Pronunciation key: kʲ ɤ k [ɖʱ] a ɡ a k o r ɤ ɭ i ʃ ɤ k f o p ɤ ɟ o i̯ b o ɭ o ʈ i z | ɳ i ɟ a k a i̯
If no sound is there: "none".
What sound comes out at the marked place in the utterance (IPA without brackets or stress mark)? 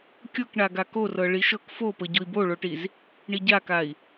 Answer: ɳ